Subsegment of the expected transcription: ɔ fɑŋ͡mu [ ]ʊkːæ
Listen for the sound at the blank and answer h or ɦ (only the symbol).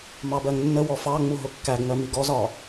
ɦ